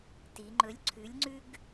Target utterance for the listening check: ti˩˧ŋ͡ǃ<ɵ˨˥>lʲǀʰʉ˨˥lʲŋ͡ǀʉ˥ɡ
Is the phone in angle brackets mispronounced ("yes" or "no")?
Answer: no